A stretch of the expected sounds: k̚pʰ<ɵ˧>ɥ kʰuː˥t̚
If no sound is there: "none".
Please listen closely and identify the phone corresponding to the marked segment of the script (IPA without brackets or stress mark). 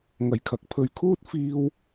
ɵ˧